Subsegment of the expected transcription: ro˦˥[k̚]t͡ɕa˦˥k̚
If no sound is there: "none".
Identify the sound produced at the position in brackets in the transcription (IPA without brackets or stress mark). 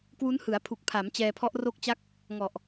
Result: k̚